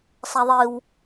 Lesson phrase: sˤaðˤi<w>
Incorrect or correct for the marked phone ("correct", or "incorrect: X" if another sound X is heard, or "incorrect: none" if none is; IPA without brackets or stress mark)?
correct